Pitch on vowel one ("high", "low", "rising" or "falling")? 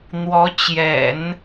rising